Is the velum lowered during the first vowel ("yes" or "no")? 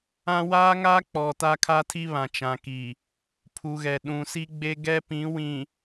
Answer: yes